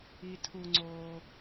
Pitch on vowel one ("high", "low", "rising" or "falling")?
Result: high